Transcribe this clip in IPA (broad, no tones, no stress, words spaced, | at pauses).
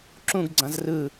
ǁũɡ ɡ͡ǀãzrɯ